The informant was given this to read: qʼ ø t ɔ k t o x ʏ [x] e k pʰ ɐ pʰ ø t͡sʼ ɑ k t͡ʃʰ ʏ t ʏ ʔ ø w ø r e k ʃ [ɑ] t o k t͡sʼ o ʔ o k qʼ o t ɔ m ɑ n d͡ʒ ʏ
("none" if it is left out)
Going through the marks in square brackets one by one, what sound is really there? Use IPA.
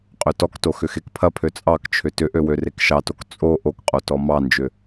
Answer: x, ɑ

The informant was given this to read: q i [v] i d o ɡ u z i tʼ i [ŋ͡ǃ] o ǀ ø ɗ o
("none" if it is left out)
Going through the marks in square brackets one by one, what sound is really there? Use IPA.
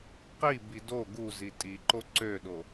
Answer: b, ǃ

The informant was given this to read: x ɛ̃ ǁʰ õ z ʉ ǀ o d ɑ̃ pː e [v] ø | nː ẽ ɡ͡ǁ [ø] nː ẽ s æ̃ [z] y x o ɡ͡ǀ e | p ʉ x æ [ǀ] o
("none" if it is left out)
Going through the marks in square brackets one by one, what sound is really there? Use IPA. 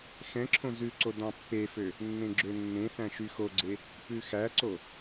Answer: f, ø, ʃ, ǀ

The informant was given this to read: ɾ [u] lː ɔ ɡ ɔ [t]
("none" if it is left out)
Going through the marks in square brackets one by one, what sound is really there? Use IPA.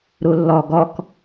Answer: u, k

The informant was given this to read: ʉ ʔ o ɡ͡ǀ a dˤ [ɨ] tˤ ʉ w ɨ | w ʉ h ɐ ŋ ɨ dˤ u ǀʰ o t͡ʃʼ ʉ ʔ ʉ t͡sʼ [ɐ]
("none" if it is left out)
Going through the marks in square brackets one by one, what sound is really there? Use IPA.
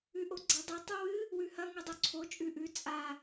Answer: ɨ, a

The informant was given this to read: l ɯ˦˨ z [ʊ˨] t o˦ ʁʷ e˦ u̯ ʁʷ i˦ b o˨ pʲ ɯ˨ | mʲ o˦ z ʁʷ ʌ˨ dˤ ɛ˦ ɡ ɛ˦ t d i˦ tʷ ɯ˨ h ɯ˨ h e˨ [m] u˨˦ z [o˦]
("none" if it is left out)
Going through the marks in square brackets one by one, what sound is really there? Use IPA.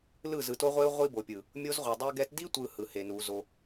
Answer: ɯ˨, n, o˦

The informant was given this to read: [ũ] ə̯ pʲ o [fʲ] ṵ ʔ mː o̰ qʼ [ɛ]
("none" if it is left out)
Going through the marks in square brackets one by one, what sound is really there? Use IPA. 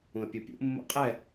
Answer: ũ, pʲ, ɛ

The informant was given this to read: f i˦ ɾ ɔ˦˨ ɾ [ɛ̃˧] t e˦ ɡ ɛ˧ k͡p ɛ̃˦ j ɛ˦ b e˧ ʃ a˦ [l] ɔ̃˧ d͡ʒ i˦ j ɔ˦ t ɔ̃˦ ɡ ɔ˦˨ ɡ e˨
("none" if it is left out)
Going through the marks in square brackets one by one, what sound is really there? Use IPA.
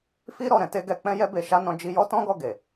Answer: ɛ̃˧, n

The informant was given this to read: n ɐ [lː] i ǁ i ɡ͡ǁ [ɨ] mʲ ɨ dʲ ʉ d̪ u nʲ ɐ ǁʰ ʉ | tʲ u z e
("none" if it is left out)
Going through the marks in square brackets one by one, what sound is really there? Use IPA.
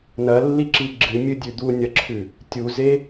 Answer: lː, ɨ

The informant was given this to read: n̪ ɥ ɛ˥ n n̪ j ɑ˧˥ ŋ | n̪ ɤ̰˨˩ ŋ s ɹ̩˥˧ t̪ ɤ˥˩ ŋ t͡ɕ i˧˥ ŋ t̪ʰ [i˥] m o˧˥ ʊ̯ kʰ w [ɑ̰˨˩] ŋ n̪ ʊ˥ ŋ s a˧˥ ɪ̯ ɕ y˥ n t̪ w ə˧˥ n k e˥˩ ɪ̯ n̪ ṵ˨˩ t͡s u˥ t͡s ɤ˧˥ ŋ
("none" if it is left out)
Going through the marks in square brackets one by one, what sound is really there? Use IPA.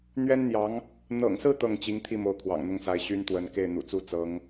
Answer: i˥˩, ɑ̰˨˩

